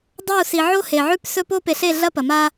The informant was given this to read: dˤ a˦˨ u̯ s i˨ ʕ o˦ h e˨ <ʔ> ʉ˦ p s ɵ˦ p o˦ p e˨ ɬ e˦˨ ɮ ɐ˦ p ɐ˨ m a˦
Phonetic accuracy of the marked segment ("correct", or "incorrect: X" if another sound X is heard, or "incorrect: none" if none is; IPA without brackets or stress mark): incorrect: ʕ